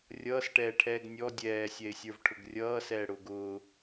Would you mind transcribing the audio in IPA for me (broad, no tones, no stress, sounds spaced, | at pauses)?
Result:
rʲ ʌː s ʈ ɛː ʈʰ ɛː ɡ nʲ ɔ dʲ ɛː sʲ ɛ ɪ̯ sʲ ə˞ v ʈʰ ʊ ɡ rʲ ʌː s ɛː ɽ ʊː ɡ ʊː